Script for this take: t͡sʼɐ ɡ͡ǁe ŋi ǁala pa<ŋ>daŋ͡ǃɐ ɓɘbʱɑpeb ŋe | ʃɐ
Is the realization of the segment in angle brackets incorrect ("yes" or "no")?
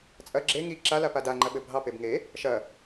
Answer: yes